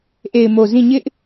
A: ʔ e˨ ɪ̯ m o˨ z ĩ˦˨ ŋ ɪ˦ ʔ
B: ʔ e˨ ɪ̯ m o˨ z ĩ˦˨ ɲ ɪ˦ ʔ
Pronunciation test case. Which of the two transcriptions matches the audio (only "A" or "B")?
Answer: B